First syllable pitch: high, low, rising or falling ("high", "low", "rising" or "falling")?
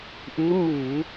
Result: rising